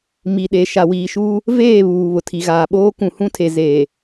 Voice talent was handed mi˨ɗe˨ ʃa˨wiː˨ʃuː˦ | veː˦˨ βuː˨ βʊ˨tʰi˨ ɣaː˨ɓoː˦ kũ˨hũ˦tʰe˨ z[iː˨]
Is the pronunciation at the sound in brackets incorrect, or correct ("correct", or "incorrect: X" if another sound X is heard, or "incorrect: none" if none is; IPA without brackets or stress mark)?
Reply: incorrect: eː˨